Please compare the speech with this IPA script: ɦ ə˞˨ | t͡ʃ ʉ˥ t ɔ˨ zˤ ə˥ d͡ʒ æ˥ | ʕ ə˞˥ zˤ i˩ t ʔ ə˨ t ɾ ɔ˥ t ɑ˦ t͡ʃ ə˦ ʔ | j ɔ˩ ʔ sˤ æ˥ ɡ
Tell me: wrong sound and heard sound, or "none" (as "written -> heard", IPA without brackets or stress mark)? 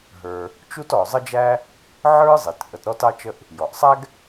ʉ˥ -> u˥